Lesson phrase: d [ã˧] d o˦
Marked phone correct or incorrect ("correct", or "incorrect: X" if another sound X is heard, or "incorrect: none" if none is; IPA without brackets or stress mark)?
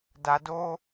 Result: incorrect: a˧